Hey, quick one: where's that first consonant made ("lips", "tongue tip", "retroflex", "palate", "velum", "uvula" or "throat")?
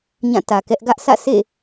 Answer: palate